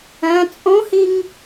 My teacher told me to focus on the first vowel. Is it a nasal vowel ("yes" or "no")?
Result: yes